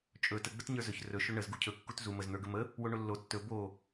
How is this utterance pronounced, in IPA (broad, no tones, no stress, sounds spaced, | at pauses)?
t͡ʃʼ ɵ t ə ɡ͡b ə t ɲ ə˞ z ɵ ç r ɵ ʃ ɵ ɳ ə z ɡ u cʰ ɵ kː u t z u m ə z n̪ ə˞ ɡ ə m ə | w o ɳ o lː o tː ɵ b o